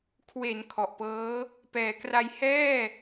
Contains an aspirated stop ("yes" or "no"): yes